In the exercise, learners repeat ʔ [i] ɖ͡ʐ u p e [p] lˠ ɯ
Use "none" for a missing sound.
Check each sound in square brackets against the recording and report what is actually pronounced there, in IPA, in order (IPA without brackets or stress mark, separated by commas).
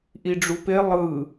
i, none